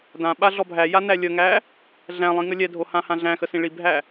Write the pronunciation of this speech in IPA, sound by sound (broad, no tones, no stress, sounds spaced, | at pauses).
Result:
d ã ɓ a ɮ ɔ bʱ æ j a n æ lʲ ə ŋ æ | ɮ æ̃ lˠ ĩ ŋ ə lʲ ɛ dʱ o h ã h ã ɮ æ̃ x ə s ĩ ɭ i bʱ æ